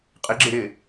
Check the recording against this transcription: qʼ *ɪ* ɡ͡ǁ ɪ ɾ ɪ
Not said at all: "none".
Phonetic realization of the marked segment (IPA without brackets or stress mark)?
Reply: ɪ